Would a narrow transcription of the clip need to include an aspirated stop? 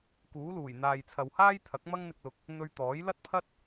yes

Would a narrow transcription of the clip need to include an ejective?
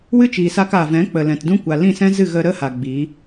no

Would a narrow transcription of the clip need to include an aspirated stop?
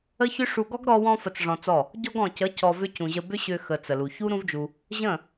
no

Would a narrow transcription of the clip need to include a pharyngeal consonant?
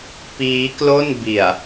no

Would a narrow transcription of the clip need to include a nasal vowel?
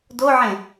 yes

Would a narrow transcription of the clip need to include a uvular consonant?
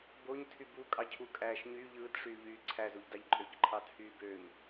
no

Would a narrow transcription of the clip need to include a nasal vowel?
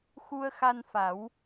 no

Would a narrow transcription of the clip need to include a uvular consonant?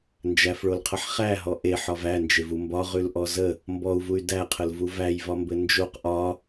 yes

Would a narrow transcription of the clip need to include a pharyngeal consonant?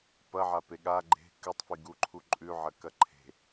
yes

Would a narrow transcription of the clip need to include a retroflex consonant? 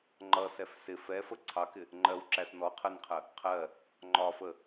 no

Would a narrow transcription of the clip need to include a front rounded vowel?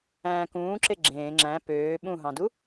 yes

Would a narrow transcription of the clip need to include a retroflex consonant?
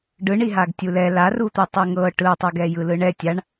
yes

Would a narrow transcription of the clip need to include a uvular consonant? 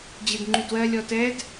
no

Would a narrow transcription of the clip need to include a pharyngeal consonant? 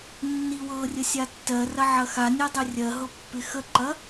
yes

